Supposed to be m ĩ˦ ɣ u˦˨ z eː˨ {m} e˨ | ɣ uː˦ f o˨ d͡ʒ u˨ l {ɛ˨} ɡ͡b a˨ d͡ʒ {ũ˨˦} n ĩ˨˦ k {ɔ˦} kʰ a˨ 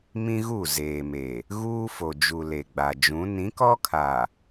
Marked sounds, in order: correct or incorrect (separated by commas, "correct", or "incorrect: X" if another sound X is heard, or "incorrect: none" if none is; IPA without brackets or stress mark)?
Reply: correct, incorrect: e˨, correct, correct